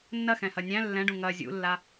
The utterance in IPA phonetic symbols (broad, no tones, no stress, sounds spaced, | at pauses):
nː ɐ x ɛ̃ h ɐ nʲ æ̃ lː ɛ̃ ɖ ũ ŋ ɐ zʲ ṵ lː a